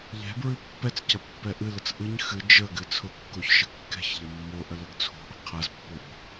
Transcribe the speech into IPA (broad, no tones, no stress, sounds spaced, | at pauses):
ʎ ɛ̤ b ɹ ɨ pː ɛ t͡s c ɐ pː ɛ ʔ ɨ l ə t͡s ʔ ɨ ɲ x ɨ d͡ʒ ə ɡ ɨ t͡sʰ ʊ kː o ç ʃ ə kː ɛ̤ ç ʎ ɐ mː o ʔ ə l ə ɡ t͡sʰ o̤ ʔ ə̤ qʰ ɐ z pː ʊ b